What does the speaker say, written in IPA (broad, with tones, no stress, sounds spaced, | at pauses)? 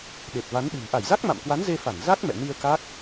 ɗ e˨˩ t̚ v a˨˦ n ɗ ɨ̤˨˩ m ʔ a˧˩ j z a˦˥ k̚ m a̰˧˨ m k w a˨˦ n z e˧ f a˧˩ n z a˦˥ k̚ m ɛ̰˧˨ n i˧ ə̯ k a˦˥ k̚